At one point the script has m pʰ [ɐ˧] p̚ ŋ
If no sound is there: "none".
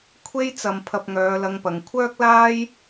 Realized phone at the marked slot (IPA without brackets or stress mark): ɐ˧